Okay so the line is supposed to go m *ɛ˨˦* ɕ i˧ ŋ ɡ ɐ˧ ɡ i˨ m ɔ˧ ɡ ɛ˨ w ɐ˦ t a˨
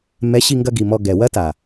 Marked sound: correct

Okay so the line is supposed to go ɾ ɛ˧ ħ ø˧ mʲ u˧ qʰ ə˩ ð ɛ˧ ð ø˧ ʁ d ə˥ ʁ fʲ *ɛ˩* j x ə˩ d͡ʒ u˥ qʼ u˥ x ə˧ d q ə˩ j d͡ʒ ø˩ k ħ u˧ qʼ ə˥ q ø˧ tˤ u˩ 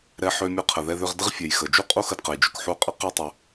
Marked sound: correct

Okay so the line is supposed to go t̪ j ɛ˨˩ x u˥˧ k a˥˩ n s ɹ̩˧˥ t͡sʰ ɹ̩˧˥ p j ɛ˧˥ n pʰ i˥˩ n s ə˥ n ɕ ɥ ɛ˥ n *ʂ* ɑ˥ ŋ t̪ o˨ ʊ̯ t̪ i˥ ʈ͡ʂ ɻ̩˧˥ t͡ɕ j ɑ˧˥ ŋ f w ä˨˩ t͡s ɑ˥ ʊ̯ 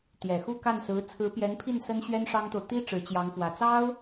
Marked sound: correct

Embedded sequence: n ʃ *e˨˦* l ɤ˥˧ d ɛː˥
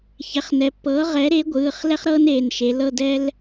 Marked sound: correct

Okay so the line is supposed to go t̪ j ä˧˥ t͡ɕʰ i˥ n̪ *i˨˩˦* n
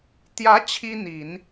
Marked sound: correct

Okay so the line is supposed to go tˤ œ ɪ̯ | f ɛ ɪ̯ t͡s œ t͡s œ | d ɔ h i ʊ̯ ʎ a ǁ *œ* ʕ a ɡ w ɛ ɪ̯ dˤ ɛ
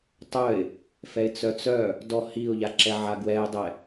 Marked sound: incorrect: ɛ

